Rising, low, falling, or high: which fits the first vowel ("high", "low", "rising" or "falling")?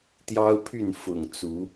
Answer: high